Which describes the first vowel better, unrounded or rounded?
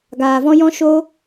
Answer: unrounded